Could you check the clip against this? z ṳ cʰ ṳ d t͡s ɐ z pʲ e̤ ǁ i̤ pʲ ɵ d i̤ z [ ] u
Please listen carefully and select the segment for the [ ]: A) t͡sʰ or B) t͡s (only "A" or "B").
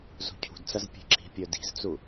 B